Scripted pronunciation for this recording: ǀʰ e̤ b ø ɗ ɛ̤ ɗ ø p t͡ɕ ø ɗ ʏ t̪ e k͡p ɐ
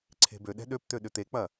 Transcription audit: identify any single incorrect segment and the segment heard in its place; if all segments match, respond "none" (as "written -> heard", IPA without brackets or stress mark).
t͡ɕ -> t̪